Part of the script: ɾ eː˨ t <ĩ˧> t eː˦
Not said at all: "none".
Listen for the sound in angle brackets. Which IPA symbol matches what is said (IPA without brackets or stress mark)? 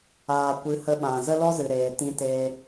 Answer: ĩ˦